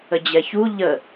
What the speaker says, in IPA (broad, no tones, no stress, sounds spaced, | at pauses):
ə d͡ʑ ɛ ç u ʎ ə